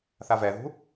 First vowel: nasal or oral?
oral